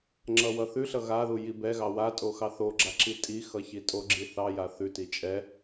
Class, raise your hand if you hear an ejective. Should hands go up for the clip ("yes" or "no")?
yes